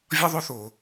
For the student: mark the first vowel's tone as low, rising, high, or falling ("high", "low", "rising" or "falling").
high